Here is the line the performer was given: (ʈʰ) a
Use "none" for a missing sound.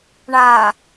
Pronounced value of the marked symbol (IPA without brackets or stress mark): ɳ